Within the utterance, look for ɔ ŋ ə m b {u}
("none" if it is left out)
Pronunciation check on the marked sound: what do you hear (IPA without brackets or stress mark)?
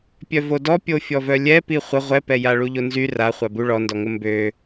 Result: ø